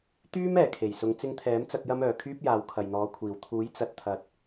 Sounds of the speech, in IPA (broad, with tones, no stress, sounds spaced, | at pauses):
t̪ yː˥ m ɛː˨˩ kʰ e˨˩ j s ʊ˨˧ ŋ t͡s ɪ˧ ŋ t̪ʰ ɛː˨˥ m t͡s ɐ˧ k̚ j ɐ˥ m œː˨ kʰ yː˥ p̚ j aː˨˧ w kʰ ɐ˨ j n̪ ɔː˨˧ kʷʰ iː˨˩ w t̪ʰ uː˨˥ j t͡s ɐ˨ t̚ t̪ʰ ɐ˨ t̚